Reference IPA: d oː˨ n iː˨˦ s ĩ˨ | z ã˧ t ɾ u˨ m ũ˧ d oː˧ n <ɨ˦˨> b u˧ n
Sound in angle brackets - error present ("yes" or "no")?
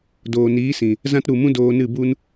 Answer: no